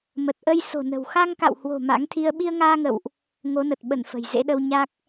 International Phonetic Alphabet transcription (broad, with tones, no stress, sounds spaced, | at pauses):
m ə˨˩ t̚ ʔ ə˧ j s o̤˨˩ n ə̤˨˩ w x a˧ ŋ k a̰˧˨ w h w o̤˨˩ m a̰˧˥ ŋ t̪ʰ i˧ ə̯ ɓ i˧ ə̯ ŋ aː˧ ŋ ə̰˧˨ w ʔ | ŋ o˨˦ n ə˨˩ t̚ ɓ ə˧˩ n f ə̤˨˩ j z ḛ˧˥ ɗ ə˧ w ɲ a˦˥ k̚